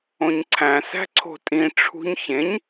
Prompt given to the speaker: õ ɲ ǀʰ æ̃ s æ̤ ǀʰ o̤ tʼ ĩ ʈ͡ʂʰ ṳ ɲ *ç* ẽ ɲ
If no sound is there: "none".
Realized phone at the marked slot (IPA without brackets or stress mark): ç